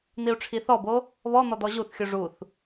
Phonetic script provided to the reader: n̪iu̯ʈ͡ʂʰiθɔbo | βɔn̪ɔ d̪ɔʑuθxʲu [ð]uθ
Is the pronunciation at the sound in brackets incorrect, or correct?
incorrect: ʐ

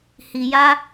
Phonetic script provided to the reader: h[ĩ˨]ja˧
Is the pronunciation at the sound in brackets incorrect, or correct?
incorrect: i˨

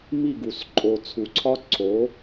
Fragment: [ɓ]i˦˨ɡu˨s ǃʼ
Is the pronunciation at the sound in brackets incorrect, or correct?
incorrect: m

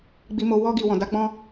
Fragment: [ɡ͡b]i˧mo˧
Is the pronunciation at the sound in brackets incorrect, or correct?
correct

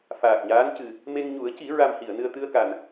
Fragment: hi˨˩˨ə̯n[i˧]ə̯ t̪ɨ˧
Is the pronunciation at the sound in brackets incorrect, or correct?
incorrect: ɨ˧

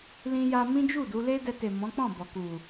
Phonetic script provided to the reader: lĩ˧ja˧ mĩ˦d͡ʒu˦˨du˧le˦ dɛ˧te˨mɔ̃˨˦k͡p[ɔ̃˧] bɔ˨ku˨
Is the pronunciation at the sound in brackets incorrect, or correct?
incorrect: ɔ̃˦˨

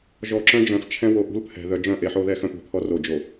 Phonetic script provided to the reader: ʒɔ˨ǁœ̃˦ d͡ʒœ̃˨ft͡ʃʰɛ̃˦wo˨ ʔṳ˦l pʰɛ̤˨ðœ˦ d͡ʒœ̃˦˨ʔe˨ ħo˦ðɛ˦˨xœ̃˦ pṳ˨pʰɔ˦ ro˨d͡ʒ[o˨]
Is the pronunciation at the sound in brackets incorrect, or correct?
correct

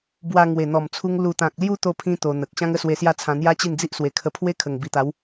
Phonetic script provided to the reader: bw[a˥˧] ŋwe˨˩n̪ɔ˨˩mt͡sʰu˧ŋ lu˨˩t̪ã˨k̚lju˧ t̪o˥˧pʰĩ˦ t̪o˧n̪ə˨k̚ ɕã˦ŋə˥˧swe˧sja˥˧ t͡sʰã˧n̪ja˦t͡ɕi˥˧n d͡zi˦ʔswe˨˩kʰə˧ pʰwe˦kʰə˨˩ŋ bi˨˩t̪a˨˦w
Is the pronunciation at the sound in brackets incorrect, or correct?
incorrect: a˧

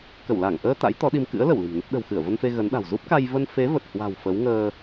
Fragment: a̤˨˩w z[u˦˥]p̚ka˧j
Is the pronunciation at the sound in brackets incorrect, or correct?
correct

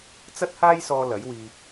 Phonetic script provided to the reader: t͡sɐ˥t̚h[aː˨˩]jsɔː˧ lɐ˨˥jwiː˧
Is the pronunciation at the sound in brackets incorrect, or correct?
incorrect: aː˥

